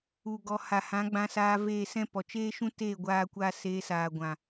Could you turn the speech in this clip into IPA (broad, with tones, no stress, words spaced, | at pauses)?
u˨ ɡɔ˨ ha˨hã˨˦ ɡ͡bã˧saː˧ veː˦˨sɛ̃˦pɔ˨ t͡ʃeː˦ʃũ˦teː˦˨ ɡʷaː˦kʷa˦ seː˧saː˨ ɡʷã˨